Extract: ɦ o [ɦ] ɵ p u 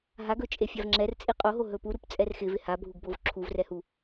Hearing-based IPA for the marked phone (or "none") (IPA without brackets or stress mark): ɦ